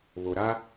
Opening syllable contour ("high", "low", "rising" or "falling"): low